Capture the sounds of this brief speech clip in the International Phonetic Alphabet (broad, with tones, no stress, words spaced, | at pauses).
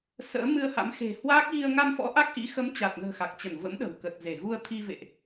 sə̰ː˧˥mɨ˧ə̯ha̰˧˥m xe̤˨˩ hwaː˦˥k̚ɣi˧ə̯ ŋa˧nfɔ̰˧˥ ʔa˦˥k̚ʔḭ˧˥ xə˨˦mt͡ɕa˨˩t̚nə̤ː˨˩ xa˨˩k̚t͡ɕə˧˩nvə̰˧˥mɗə̤˨˩w kə˨˩t̚ze˧˩ɣu˧ə̯ t̪ʰi˧ vḛ˧˨ʔ